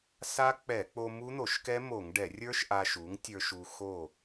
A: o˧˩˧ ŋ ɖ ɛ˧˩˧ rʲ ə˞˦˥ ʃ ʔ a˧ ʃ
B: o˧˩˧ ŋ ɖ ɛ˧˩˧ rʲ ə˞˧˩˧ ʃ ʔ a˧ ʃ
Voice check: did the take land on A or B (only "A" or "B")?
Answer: A